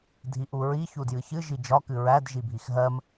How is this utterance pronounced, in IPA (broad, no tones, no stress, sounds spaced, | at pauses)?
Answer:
dʱ i ʔ u ɹ i ç u d j ɨ ç ɨ ʒ i d͡ʒ ɒ k ɨ ɹ æ d ʒ i bʱ i x ɦ ɜ m